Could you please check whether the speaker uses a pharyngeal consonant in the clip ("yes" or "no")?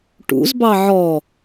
yes